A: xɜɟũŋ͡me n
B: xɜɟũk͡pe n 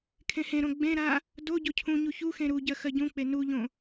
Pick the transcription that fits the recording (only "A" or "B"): B